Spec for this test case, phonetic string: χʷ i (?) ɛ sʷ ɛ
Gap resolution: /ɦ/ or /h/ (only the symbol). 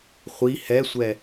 h